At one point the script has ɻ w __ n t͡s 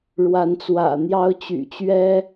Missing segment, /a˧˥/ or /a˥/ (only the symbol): a˧˥